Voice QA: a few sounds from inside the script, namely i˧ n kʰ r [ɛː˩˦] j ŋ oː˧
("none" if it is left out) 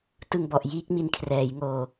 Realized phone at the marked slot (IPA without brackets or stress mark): ɛː˩˦